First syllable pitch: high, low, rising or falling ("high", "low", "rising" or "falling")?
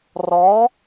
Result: rising